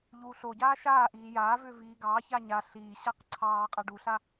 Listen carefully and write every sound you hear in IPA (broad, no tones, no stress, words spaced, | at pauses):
ʎuːɬoɟaː ʃaːʔiː jaːvʏː viːɡɑːça ɲa ɬiːɕaq ǀʰɑːqʼa ɖuɬa